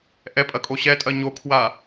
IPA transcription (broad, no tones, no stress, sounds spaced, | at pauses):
ʔ ɛ pʼ ɐ kʼ o ɕ ɛ tʼ ɐ ɲ o kʰ w a